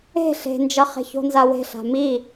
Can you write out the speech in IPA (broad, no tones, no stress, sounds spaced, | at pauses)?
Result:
e̤ ɬ e̤ n d͡ʒ ʌ χ e̤ ç o̤ n z a w e̤ ɬ a̤ m i